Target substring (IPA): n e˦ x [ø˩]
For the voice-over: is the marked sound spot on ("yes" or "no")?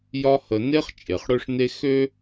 no